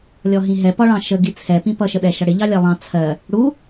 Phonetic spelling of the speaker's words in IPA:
lʲ ɔ ɦ ĩ ɦ ɛ p ɒ ɭ ɑ̃ ʃ ə ɡ i t͡sʰ ɛ p ĩ p ʌ ʃ ə ɗ ɛ ʃ ʌ ɽ ɪ ʎ ɑ lʲ ɜ lˠ ɑ̃ t͡sʰ ɜ | ɽ u

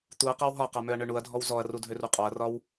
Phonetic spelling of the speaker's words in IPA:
t̪ u ɐ̯ q ɒ w ɦ ɒ q a m ø ɐ̯ ɳ ø ɳ u ɐ̯ dʱ ɔ w z ɔ ɐ̯ r u dʱ ø r u qʼ ɔ ɐ̯ r ɒ w

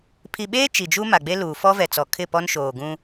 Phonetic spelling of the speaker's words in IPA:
pʰ i˨ ɓ eː˦ t͡ʃ i˨ d͡ʒ u˦ m a˨ ɡ͡b e˦ l uː˨ f ɔ˦ v ɛ˨ t͡s ɔ˨ kʰ ɪ˦˨ p ɔ˦ n ʃ oː˨ ɡ ũ˦

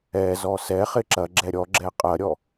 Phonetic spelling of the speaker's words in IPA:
ɛ z ɔ s ɛ χ ɪ ǁ ɐ ɡ͡ǁ ɛ ɾʲ ɔ ɡ͡ǁ ɛ qʼ ɐ ɾʲ ɔ

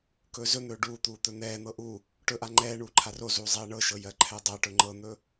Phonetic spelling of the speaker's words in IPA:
k ɵː z ɵ n̪ ɵː ɖ uː t̪ uː t̪ ɵ n̪ ɛː n̪ ɤ ʔ u | ʈ ɵ ʔ a ŋ͡ǃ ɛː ɳ uː ǃʰ a r o z uː zˤ ɛː ɳ ɤ ʃ ɤ j ɜ ǃʰ ɛ dˤ a ʈ ɵ ŋ͡ǃ ɤ n̪ ɵ

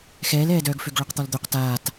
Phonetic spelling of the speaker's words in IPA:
x ɛː l ɛː d œː ɡ f ø ɡ ɭ ø q t̪ ɔ l d̪ ø q t aː t

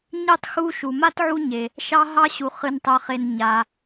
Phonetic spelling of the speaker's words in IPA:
ɲ ɨ˥ tˤ x u˦ ʃ u˩ m a˥ t ʕ u˦ ɲ e˩ | ʃ ɑ˦ ɦ ɑ˥ ɕ u˨ χ ɨ˨ n tˤ œ˨ χ e˨ n ɲ a˨

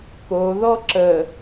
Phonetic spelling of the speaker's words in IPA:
k o ð ɔ ǁ ə

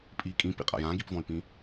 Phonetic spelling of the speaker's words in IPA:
pʼ i kʼ ĩ p ḭ qʼ a̰ j ã ɡ i p v ɔ̃ y̯ p ĩ

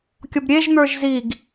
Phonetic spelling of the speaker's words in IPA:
kʲ ɔ b ɾʲ e ʒ n̪ ə˞ ʒ z i ɡ

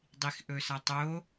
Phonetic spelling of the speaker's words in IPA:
dˤ i x ʔ ɵ s ɐ tˤ o

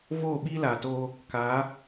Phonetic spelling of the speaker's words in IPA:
v oː˦˨ ɓ iː˦ l aː˨ t oː˧ | k a˨˦

